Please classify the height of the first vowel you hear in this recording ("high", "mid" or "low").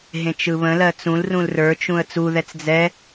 mid